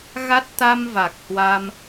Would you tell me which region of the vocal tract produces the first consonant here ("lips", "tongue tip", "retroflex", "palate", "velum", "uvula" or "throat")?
velum